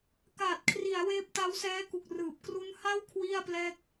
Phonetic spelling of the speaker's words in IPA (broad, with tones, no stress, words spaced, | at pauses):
ka˨˩t̚kʰri˩˦a̯ weː˦˥p̚ta˦˥wsɛː˦˥ku˨˩k̚ rɯː˨˩p̚ kru˦˥nha˥˩w kʰwi˥˩a̯plɛː˥˩k̚